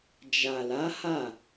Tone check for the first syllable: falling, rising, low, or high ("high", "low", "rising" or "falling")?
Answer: low